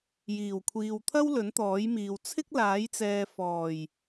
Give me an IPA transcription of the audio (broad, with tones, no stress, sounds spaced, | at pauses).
j iː˨˩ w kʷʰ iː˨ w t̪ʰ ɐ˥ w l ɵ˨˥ n t̪ ɔː˨˥ j m iː˨ w t͡sʰ ɪ˥ k̚ l aː˨˥ j t͡s ɛː˨ f ɔː˨˩ j